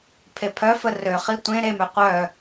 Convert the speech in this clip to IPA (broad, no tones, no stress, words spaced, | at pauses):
pʰepʰœfə røχi tʷẽ ɾemø qʷœ